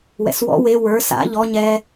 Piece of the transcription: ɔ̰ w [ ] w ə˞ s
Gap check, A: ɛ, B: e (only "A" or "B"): B